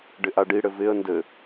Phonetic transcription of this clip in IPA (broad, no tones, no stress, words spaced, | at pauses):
ɖɪʔaɖiɽɘ vɪə̯ ndɘ